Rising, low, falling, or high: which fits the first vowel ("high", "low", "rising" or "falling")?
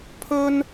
high